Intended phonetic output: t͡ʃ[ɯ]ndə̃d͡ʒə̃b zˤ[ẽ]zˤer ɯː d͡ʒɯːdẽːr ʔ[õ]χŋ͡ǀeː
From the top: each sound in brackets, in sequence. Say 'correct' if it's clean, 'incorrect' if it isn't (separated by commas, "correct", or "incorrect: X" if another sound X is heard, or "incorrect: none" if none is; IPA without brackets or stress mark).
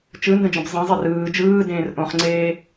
correct, correct, correct